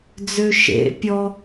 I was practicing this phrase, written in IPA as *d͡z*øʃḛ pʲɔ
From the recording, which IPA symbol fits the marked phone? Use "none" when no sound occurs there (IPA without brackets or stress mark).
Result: d͡z